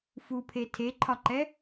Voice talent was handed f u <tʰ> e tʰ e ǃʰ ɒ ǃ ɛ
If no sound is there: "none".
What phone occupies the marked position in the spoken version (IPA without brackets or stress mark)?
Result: pʰ